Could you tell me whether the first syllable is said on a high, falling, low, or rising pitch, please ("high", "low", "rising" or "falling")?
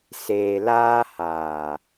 low